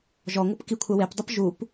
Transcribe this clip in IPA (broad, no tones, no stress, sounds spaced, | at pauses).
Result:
ʒ ɔ ŋʷ ɯ p k i kʷʰ ɛ w e p dˤ ɯ p ʒ u p